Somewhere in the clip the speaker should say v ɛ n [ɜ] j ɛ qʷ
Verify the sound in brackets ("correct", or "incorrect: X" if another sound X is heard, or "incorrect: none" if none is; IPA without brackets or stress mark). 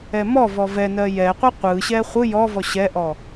correct